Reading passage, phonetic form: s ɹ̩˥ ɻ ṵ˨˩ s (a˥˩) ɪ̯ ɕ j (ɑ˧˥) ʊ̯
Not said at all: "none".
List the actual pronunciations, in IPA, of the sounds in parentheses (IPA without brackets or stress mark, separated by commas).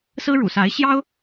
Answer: a˧˥, ɑ˥